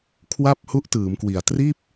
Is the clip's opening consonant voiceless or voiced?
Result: voiceless